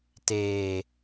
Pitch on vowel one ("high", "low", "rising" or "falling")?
low